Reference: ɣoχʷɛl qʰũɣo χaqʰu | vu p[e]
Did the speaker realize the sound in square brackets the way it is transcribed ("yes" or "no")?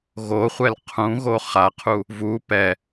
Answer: no